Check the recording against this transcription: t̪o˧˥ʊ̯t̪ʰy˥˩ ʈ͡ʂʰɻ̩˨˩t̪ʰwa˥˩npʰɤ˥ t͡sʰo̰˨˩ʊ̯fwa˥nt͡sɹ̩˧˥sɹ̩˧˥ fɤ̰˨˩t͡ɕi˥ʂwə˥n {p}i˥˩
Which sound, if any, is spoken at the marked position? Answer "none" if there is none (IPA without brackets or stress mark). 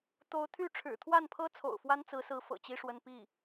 p